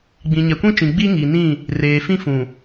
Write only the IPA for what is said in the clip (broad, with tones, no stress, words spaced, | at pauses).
ɡ͡bĩ˨ɲɛ˨kʷĩ˦t͡ʃĩ˨ ɡ͡bi˦ŋi˨nĩ˦˨ | reː˨fĩ˦fũ˨